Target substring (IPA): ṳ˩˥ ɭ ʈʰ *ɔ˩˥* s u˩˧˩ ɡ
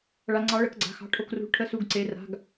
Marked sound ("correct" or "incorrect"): incorrect